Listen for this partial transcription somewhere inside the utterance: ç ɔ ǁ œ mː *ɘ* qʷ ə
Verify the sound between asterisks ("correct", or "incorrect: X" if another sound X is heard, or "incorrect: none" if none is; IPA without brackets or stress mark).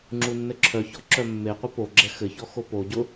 incorrect: e